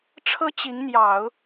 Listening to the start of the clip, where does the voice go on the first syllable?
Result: high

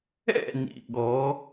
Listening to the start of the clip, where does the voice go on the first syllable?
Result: falling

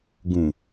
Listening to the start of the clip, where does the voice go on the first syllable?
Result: low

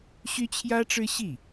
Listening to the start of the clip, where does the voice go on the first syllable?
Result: high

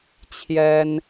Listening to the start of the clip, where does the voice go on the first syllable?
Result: high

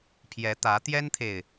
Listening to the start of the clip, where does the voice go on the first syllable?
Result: rising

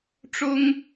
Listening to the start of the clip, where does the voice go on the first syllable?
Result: high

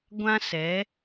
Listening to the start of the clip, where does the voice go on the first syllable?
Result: high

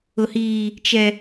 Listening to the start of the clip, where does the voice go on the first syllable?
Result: high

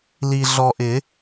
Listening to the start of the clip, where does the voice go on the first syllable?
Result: low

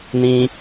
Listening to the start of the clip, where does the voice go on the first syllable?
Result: low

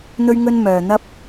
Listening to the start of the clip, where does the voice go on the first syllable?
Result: high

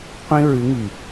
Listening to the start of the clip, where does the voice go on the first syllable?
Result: high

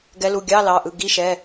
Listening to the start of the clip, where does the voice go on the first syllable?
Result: rising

